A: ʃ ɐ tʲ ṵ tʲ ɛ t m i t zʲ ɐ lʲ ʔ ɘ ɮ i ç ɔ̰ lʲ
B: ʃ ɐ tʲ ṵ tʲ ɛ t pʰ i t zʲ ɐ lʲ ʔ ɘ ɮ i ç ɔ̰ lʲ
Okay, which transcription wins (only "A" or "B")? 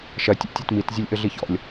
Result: A